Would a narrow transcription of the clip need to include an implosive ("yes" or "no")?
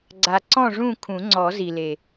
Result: no